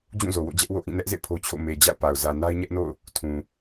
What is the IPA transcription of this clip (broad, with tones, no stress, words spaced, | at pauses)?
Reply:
d͡ʑũ˦˨zo˨wo̰˦˨ d͡ʑɛ˦ʔwo̰˦˨ʔĩ˦˨ nɛ˦ʔzḛ˦˨ pʰo˦t͡ɕʰo̰˦˨ me˨d͡ʑa̰˦˨ʊ̯ pa˨ʊ̯ zä˨ na˦ɪ̯ɲɛ˦ʔno̰˦˨ʊ̯ | tʰũ˨